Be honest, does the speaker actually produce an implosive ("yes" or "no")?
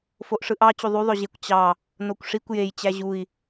no